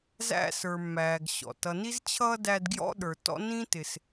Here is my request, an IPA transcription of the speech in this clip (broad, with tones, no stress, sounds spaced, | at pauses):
z æ̰˦ s ə˞˨ mː æː˨ ɡ ɕ ɔ̰˩ t ʌ˨ n i˦ z t͡ɕʰ ʌː˦ d æ˦ d ɡ j ɔ̰˥ ɗ ə˞˨ t ɔ̰˦ n ĩ˥ t ɪ˨ s